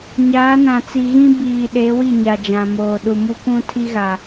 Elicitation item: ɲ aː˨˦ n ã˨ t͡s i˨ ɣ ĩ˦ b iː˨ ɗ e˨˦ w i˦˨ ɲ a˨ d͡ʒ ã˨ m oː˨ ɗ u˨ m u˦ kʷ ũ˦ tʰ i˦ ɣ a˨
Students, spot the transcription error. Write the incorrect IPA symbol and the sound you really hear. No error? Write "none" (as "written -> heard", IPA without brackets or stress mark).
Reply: none